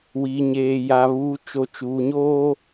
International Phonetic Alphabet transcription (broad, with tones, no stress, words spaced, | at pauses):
wiː˨ɲeː˨ ja˨ βuː˨ t͡ʃo˨ t͡ʃuː˨ɲoː˦